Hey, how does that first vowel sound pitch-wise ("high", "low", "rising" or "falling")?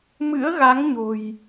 rising